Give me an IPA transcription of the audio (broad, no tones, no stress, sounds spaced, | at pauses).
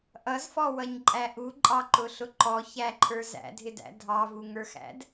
ʔ ʌ z f ɔ w ʌ ɲ ǃʼ æ ʔ u ǃʼ ɑ ǃ ʊ ɬ ʊ ǃ ɔ ç æ ǃʰ ə˞ z æ̰ dʱ ɪ d æ̰ dʱ ɑ v u ŋ ə˞ x æ̰ d